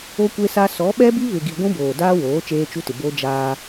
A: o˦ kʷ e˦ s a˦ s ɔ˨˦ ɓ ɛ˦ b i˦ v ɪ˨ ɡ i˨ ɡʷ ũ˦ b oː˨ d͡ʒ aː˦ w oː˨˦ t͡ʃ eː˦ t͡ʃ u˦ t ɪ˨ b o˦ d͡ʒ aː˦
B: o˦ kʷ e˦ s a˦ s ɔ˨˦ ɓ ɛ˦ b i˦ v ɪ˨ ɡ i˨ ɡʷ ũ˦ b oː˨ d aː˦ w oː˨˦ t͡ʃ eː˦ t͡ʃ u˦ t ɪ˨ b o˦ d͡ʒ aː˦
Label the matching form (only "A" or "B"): B